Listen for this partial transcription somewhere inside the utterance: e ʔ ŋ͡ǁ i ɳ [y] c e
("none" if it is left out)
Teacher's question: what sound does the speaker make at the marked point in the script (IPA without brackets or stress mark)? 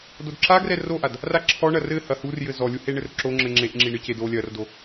ɨ